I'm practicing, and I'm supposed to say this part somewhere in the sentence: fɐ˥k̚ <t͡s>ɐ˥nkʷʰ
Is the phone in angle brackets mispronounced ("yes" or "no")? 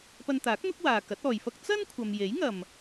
no